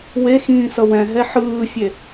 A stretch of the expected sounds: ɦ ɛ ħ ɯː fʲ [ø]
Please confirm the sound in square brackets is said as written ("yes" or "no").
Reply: no